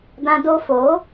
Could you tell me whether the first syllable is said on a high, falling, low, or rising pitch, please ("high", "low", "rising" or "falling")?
high